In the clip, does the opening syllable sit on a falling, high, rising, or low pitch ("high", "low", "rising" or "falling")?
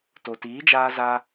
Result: low